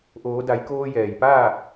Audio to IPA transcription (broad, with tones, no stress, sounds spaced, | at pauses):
ʔ oː˩˧ d a˩˧ j k oː˧ j ɛː˩ j p aː˥˨